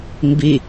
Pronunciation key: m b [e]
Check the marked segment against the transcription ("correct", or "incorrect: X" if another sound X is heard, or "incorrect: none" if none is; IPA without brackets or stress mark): incorrect: i